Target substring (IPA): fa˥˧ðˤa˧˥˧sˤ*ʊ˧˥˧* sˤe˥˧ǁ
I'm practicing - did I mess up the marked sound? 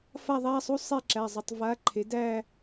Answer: yes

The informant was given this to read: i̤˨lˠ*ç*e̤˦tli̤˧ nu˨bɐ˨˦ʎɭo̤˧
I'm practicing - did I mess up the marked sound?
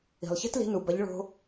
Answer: no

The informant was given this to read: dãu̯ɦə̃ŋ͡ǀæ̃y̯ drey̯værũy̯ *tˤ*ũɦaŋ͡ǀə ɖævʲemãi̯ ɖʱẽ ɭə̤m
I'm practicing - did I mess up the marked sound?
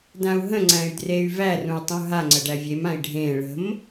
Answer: no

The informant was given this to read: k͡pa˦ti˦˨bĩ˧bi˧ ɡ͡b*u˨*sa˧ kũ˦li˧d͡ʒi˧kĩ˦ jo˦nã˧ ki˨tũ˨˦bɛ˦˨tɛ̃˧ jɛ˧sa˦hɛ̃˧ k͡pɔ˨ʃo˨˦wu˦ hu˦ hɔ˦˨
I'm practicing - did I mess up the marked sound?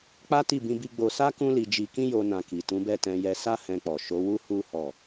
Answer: yes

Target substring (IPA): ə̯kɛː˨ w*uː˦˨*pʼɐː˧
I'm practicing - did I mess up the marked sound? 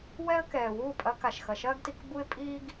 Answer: no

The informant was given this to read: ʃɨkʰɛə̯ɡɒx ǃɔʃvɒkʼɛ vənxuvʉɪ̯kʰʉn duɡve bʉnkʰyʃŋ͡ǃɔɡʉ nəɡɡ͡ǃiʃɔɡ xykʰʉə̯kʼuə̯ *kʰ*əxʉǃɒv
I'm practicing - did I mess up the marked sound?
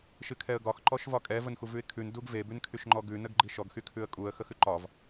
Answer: yes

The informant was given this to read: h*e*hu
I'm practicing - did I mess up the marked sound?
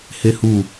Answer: no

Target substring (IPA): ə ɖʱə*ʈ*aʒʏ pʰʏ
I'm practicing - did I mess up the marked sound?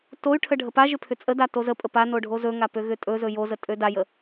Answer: yes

